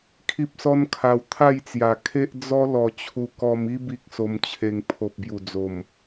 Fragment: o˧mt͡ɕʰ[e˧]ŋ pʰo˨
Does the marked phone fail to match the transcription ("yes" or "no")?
no